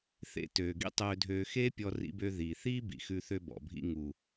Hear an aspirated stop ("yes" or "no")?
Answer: no